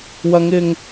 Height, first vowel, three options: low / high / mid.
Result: low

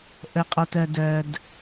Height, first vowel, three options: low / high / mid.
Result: mid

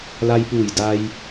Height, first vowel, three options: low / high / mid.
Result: low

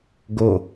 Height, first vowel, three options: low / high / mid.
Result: mid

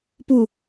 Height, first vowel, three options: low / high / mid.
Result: high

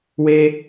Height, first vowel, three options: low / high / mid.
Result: mid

